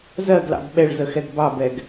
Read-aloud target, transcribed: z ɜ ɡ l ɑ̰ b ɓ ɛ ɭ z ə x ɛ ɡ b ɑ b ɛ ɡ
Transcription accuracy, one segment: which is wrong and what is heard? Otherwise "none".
none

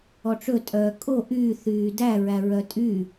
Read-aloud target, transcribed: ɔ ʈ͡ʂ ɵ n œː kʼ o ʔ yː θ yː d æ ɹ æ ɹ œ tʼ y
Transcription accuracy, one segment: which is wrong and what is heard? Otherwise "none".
n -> tʼ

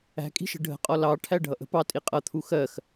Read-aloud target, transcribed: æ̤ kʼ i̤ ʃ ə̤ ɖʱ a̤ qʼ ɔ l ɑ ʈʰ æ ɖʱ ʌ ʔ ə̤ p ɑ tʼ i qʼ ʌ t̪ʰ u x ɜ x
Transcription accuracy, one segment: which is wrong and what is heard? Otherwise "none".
a̤ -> ə̤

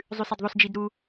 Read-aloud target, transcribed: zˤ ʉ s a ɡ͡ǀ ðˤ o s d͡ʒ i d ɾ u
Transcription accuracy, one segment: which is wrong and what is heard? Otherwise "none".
ɡ͡ǀ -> d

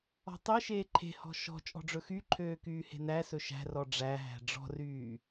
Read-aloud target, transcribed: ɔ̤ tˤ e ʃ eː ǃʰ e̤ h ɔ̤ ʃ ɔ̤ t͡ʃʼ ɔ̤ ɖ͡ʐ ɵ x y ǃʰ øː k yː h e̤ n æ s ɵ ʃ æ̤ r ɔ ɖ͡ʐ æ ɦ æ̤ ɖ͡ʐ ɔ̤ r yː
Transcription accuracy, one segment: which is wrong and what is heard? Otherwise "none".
none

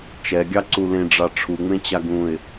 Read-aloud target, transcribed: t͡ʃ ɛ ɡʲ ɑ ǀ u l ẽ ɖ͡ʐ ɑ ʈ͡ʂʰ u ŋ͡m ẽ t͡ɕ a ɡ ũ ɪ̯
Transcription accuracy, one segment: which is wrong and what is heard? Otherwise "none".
none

